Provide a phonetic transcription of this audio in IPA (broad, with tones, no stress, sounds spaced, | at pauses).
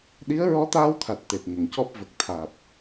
ɗ i˧˥ ə̯ ɹ ɔ˧˥ t̪ aː˧ w t̪ʰ a˨˩ t̚ t̪ e˨˩ t̚ ŋ ə˨˩˨ ŋ c ɔ˦˥ p̚ v ə˨˩ k̚ t̪ʰ aː˨˩ p̚